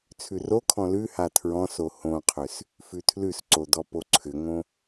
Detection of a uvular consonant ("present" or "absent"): present